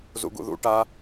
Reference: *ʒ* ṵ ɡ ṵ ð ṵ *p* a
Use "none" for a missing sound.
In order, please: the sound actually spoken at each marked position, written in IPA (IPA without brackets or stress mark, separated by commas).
z, ʈ